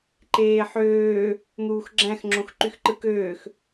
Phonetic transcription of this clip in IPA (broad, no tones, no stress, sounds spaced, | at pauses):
ǃ eː ħ øː | n̪ uː x ɡ͡ǁ æ̃ x ŋ͡ǁ õ x ǃ y x ǃ ɯ k øː x